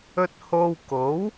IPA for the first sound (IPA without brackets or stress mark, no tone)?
ɵ